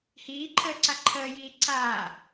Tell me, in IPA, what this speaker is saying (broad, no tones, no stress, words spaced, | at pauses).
hiːǃʰəːǀa ǃʰəːjiː ǀaː